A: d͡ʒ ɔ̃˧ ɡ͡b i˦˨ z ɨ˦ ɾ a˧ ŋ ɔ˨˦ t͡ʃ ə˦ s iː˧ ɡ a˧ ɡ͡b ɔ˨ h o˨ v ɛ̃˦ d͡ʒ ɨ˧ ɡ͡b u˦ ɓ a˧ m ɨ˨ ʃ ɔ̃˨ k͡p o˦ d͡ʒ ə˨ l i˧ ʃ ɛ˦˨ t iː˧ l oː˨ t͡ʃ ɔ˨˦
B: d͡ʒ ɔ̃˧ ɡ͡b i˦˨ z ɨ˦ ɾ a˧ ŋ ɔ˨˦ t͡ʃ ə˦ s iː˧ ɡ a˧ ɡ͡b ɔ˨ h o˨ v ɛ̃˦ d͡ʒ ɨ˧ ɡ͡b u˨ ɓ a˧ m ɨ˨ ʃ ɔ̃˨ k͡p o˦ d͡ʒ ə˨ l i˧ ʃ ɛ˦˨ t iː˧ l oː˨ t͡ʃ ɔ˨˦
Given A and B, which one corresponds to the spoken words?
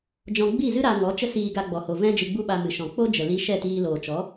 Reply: A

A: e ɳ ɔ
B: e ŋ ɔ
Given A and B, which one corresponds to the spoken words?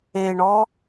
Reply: A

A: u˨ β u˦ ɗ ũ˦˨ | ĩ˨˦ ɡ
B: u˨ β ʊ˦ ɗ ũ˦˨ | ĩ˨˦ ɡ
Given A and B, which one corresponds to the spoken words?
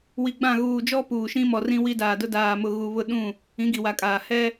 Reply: B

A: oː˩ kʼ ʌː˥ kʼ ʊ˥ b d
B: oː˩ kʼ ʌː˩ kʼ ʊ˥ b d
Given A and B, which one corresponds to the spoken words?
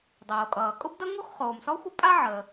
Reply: B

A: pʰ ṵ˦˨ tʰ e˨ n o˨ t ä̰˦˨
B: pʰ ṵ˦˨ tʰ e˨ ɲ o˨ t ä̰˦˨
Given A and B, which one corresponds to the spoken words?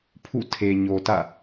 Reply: B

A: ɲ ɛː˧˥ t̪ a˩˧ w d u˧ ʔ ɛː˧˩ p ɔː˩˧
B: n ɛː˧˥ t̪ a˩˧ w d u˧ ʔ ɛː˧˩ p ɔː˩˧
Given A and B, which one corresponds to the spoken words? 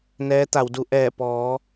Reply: B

